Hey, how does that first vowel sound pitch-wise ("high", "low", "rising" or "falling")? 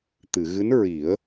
low